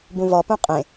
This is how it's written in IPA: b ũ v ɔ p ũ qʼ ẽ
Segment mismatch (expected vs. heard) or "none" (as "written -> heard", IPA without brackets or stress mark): none